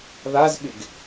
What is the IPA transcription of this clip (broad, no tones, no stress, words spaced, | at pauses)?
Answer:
ðazɓɪɡ